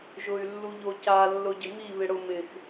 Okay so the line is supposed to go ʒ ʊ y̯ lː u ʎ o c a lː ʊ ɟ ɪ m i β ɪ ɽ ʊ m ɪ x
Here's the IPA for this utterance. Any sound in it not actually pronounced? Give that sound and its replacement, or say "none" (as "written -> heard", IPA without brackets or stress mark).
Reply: none